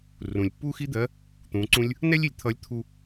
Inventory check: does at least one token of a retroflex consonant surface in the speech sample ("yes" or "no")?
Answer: no